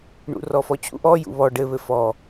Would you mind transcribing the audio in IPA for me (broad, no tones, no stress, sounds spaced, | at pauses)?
ɳ ṵ r ɔ f ɔ t͡ɕ ṵ ʔ ɔ j ṵ β ɔ ɖ ɘ β ɘ f ɔ